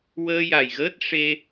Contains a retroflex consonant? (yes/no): yes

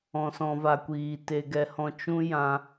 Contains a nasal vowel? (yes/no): yes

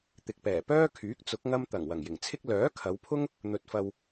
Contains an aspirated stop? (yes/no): yes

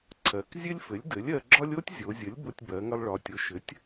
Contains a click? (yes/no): yes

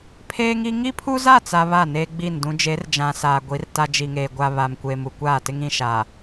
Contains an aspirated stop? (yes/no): yes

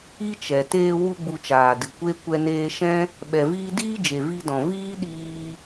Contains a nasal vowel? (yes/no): yes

